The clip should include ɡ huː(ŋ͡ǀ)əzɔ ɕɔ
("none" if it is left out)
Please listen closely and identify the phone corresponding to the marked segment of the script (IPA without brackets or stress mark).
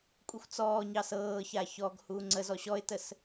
ŋ͡ǀ